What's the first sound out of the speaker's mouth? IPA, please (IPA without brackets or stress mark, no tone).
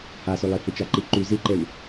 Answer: h